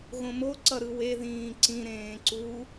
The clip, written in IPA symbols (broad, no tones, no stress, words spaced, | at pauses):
ɣõmo ǀʌɾɯwe ðĩːǀĩ ɾẽːǀu